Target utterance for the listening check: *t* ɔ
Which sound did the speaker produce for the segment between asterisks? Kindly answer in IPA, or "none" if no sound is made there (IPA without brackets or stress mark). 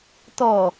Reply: t